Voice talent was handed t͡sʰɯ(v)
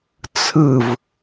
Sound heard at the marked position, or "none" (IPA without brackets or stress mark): v